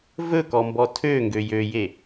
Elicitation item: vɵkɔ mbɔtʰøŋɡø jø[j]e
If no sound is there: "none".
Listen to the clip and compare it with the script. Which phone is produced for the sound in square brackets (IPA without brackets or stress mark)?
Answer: j